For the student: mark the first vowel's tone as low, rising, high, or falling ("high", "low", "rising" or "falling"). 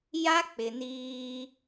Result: high